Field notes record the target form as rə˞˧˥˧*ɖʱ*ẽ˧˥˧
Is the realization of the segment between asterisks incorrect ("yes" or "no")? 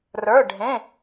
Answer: no